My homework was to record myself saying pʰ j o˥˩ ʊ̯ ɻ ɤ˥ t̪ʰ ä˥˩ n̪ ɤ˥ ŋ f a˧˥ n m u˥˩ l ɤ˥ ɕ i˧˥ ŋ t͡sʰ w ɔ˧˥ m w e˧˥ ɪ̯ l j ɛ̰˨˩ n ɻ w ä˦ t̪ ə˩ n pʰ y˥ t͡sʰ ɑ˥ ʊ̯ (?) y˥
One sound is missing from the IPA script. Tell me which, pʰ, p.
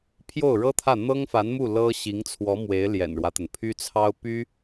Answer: p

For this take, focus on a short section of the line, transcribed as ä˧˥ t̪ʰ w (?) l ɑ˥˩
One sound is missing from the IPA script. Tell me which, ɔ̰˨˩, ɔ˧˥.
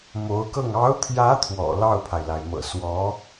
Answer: ɔ̰˨˩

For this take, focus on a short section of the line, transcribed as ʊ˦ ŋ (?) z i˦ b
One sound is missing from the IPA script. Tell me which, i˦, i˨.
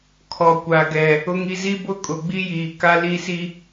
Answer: i˦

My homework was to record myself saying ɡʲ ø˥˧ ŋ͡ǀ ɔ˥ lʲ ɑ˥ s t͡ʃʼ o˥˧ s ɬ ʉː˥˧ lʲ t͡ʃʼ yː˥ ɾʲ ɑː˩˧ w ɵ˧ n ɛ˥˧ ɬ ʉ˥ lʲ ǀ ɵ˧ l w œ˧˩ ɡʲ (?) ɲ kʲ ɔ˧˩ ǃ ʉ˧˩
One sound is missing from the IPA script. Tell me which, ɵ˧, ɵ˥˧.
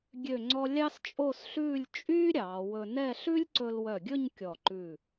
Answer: ɵ˥˧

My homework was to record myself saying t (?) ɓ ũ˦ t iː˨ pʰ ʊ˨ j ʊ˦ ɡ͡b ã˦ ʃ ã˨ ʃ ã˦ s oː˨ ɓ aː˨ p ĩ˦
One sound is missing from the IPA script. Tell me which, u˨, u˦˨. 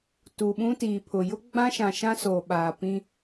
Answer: u˨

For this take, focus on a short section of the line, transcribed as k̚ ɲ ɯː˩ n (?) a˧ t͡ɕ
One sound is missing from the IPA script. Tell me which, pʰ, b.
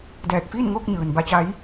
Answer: b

